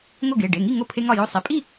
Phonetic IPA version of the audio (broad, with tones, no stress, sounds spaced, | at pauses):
ŋ o˥˨ ɡ e˩˧˩ ɖ e˩˧˩ ŋ i˥˨ ŋ o˥˨ pʰ e˦ ŋ ɒ˥˨ j o˦ sˤ e˩˧˩ pʼ i˥˨